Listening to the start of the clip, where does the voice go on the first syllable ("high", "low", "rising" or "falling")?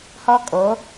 high